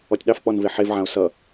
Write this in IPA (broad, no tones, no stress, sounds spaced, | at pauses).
ɔ tʲ ɗ ɑ f k͡p ɔ n v e ħ e v ʕ ã o̯ s ʌ